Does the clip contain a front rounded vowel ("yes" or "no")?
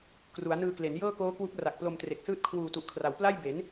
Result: no